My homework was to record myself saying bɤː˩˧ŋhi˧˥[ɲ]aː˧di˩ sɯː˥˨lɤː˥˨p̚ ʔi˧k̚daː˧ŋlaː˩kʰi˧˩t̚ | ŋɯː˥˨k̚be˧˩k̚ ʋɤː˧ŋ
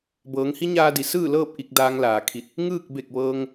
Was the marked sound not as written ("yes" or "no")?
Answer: no